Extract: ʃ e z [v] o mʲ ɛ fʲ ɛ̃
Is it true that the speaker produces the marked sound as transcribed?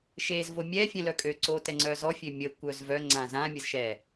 yes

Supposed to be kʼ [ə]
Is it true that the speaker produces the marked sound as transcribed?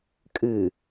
no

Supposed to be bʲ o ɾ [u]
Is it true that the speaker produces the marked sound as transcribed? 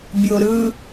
no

